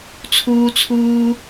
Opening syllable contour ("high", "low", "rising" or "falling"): high